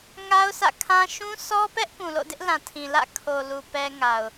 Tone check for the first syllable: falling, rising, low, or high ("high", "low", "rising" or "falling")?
high